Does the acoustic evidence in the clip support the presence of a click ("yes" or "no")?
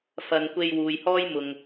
no